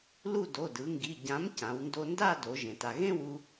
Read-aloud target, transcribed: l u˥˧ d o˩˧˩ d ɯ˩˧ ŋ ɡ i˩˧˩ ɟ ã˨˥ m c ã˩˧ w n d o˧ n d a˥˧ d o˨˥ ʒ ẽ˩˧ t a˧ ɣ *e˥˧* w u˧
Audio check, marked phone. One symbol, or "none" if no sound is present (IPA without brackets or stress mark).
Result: ẽ˥˧